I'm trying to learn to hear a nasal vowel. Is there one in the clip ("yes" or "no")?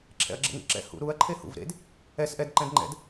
yes